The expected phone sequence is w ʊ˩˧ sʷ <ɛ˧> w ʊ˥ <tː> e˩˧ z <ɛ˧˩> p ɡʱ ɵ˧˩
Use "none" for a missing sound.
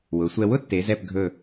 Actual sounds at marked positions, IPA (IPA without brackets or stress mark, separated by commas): ɛ˧, tː, ɛ˧˩